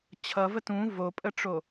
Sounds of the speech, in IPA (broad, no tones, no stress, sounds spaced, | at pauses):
t͡ɕʰ ʌ v ə t ũ v o pʼ ə ʈ͡ʂ o